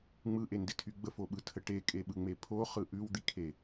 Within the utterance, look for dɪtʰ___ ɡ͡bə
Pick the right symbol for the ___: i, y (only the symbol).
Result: y